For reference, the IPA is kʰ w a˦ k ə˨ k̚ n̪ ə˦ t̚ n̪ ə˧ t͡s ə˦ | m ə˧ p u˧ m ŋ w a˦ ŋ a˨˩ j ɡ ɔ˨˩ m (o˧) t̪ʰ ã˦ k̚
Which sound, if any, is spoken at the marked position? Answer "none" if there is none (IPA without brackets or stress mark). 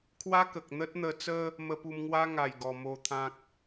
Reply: o˧